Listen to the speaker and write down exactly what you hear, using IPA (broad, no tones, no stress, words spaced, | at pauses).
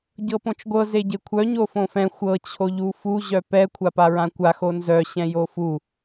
ɟɤpõt͡ʃɡʷɤ zeɟekʷʰœ ɲofõfɛ̃ xʷɤ t͡ɕʰoʎufu ʑœpɛ kʷʰapaɹãkʷa xonzœ ɕɛ̃jofu